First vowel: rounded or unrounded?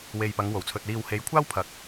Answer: unrounded